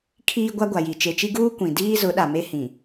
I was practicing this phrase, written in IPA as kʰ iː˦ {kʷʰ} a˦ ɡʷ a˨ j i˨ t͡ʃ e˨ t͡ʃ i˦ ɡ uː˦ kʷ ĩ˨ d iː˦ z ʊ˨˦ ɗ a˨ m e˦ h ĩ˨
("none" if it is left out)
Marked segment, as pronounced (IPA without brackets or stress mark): ɡʷ